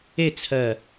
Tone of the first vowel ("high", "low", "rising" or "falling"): falling